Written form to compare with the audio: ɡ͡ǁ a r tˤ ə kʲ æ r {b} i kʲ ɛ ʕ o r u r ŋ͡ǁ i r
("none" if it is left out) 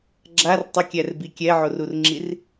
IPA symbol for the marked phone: b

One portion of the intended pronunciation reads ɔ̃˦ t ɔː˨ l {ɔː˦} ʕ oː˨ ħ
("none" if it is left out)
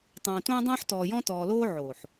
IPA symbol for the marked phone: oː˦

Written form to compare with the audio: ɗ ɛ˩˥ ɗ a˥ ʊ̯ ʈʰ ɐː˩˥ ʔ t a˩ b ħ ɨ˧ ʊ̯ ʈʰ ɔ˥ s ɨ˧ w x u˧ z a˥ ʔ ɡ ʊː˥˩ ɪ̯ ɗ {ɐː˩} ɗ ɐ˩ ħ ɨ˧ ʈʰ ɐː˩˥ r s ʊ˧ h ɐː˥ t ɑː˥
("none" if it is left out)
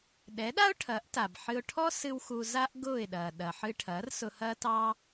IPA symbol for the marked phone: ɐː˩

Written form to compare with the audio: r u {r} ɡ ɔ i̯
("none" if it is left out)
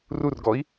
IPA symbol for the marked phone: r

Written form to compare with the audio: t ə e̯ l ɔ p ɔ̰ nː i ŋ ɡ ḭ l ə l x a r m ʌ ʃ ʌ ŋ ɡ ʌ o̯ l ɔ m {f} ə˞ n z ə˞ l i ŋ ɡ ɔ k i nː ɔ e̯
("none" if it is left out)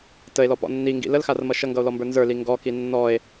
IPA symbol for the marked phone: b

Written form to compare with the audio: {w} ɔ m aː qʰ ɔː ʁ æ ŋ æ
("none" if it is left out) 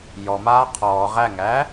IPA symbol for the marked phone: j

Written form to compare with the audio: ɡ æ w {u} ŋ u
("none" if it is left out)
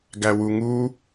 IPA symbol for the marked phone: u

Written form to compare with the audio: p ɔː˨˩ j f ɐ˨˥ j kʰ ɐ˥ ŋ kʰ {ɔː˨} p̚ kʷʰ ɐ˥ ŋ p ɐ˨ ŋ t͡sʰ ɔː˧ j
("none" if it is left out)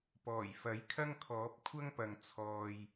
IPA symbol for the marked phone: ɔː˨˥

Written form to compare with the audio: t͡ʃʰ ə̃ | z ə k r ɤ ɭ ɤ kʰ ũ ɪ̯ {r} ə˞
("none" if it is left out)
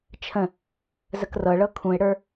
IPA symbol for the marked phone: ɽ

